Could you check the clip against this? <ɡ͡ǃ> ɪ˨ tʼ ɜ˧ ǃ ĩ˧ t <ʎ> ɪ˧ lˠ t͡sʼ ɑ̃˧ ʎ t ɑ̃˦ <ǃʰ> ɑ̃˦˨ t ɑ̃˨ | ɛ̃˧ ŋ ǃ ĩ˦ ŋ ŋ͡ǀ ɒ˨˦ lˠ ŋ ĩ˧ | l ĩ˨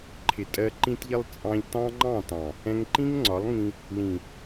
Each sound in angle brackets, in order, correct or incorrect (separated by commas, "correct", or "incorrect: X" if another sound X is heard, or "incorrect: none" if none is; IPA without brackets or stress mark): incorrect: ǃʰ, correct, incorrect: ŋ͡ǃ